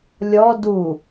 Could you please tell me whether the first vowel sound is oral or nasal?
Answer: oral